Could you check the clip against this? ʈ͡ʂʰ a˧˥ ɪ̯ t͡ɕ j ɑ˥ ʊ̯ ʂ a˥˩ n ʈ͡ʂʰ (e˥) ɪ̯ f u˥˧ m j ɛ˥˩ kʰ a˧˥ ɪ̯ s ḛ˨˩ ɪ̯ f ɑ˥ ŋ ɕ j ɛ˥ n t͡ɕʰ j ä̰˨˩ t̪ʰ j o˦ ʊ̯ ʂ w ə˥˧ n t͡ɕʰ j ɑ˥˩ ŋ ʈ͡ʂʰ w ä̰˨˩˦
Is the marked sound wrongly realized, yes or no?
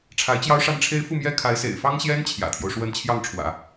no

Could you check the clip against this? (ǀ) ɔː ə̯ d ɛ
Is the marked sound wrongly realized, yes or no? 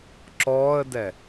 yes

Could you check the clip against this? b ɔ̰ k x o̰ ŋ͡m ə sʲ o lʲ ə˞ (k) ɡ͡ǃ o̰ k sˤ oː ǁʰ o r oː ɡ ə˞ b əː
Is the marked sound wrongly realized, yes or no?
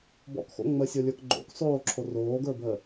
no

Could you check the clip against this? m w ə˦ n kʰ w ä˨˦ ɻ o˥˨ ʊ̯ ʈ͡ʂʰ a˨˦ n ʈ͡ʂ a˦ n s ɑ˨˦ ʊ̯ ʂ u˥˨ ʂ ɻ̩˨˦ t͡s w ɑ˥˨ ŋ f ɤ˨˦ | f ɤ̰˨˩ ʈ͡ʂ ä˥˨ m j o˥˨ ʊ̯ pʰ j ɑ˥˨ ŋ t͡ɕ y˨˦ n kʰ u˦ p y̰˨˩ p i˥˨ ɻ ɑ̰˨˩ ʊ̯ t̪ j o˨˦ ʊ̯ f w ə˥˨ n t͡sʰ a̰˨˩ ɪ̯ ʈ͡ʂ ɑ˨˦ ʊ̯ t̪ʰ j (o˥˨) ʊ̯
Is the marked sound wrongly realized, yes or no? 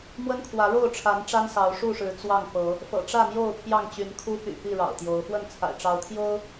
yes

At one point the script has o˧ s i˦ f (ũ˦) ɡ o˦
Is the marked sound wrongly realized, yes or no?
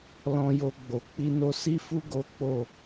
yes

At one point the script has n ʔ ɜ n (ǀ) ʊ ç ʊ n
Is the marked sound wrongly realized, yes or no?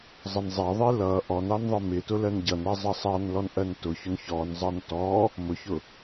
yes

